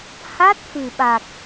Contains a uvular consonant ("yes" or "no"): no